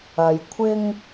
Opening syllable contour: low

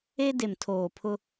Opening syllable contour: high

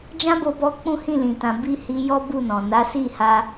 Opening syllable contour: high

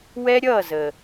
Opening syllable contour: high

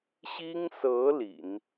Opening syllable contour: high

